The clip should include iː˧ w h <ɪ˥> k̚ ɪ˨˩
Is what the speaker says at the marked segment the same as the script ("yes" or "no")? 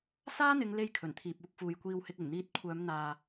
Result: no